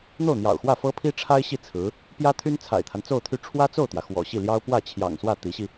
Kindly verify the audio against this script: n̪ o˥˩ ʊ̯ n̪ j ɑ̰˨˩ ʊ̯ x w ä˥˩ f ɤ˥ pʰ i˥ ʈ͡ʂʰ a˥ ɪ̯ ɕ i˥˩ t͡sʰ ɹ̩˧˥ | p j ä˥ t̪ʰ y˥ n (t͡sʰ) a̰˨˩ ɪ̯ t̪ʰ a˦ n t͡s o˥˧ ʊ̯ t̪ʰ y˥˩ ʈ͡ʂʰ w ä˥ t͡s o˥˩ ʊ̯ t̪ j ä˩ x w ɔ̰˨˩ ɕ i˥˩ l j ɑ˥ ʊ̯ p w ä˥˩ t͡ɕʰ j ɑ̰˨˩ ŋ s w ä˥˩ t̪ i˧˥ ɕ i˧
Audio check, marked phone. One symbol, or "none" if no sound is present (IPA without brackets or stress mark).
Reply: t͡sʰ